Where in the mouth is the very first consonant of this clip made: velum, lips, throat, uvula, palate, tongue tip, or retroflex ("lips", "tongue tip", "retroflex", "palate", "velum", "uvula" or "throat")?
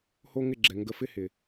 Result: throat